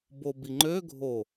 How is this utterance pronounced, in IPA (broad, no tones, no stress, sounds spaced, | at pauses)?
b o b i ŋ͡ǃ ø ɡʱ o